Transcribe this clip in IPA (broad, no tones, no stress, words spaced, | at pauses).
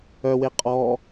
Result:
œwe qʼɔ